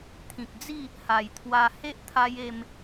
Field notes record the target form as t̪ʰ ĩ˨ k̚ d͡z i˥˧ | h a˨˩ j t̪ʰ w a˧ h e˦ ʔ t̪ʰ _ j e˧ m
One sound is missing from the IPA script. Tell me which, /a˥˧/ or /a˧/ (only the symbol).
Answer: a˧